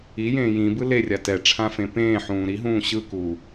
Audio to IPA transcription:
ijẽː jĩbɯ lerʲa tɛʈ͡ʂʰãfẽ pẽːħũː ɾiɦũː ɕɯkuː

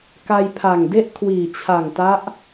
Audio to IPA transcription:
ka˧jpʰa˨˩ŋde˥˩ʔ kʰwiː˨˩t͡ɕʰa˨˩ŋta˦˥ʔ

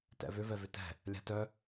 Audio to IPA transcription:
tɛ̰vʏ vɛvʏtɛ̤ | lʲa̤tœ

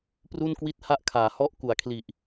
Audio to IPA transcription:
pru˥˩nkwi˥˩t̚ha˥˩ʔkʰaː˩˦ hɔ˥˩ʔ ku˩˦a̯ kʰli˨˩ʔ

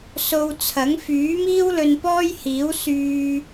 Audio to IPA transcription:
so˧wt͡sʰɐ˨˥ŋ fyː˨˥miː˥w lɵ˧npɔː˥jhiː˨˥w syː˧

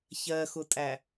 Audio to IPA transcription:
çɜxʊtʼæ

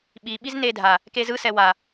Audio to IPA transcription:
ɓi ɓiznedʱa | kezɯ sɛwa

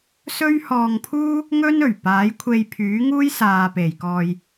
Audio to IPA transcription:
sɵ˥ɥhɔː˧ŋpʰuː˥ | ŋɵ˥nɵ˨˩ɥ paː˨˥jkʷʰe˧jpʰyː˨˥ ŋuː˥jsaː˨pe˨˩jkɔː˨j

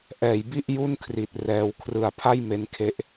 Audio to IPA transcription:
ʔɛː˩˦jbi˥˩ʔ ju˥˩nkʰri˨˩t̚ rɛː˧w kʰrɯ˨˩a̯pʰa˥˩j me˧nkʰe˦˥ʔ

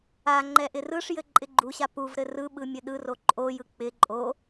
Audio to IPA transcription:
aŋ͡ǃɛ ʔɪrɯʂjɘ ǃʼɪɡ͡ǃuɕa puvɾɘ rɯɓɯ mʲɘɗɯro ǃʼojɯ k͡pɪ ǃʼo

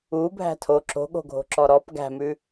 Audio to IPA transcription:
u bʱæ̤tʰo ǁo̤ɠo̤ɡʱo̤ǁɔ ɾɔp ɡæ̤mʉ

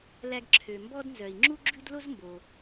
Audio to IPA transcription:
læ˧ɡǁʰø˩mbɔ˥dnzœ˩i̯ ŋ͡ǁu˥ɡ͡ǁʉ˥d lo˥zmbo˩

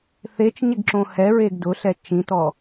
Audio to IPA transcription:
θet͡ʃɲɪɡǁõ hɛɹeɡ dʊɬɛ t͡ʃĩtɔ

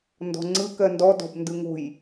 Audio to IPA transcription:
ndɔ̤ŋ͡ǀɯ kɜndɔ dɔ̤bndɯŋo̤j

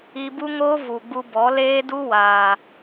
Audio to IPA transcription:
i˧bu˦ŋoː˦ vu˨ɡ͡bu˧bɔ˨˦ leː˦du˦waː˨

